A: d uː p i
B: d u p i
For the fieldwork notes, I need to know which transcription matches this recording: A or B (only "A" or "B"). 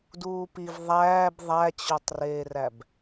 A